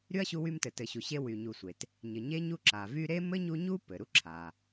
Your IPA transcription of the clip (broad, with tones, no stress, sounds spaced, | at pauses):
ɾ y˥ ɐ̯ ɕ u˦ w y˦ m t ɘ˨ t ɘ˨ ɕ u˨ ɕ e˦ w y˨ ɲ u˨ sʷ e˩ t | ɲ ɘ˨ ɲ e˥ ɲ u˥ ǁ a˩ v y˦ ɾ e˥ m ɘ˥ ɲ u˦ ɲ u˥ p ɘ˩ ɾ u˥ ǁʰ a˩